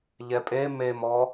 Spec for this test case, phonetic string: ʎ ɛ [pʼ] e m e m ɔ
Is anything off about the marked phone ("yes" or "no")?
no